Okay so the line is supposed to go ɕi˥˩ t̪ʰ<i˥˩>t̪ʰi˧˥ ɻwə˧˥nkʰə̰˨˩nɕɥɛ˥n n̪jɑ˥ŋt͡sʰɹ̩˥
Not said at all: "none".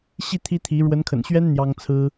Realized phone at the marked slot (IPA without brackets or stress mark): i˥